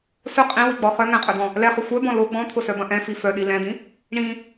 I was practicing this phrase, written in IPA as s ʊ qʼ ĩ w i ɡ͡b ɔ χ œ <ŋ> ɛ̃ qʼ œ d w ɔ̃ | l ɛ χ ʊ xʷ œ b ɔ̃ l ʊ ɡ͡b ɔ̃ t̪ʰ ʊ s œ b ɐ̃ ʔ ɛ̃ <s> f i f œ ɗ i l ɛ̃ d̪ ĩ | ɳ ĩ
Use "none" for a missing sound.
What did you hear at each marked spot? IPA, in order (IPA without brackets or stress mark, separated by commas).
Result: ŋ, none